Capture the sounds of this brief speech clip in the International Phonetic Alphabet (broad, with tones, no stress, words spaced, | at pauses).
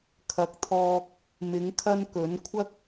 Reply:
kʰɐ˨˥k̚t̪ʰɔː˧k̚ | mɪ˨˥ŋkʰɐ˥nkɵ˨˥n kʷʰɐ˥k̚